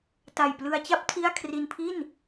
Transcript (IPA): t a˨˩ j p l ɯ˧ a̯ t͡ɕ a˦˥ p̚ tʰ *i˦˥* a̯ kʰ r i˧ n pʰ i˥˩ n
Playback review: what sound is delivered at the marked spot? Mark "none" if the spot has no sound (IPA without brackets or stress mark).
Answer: i˥˩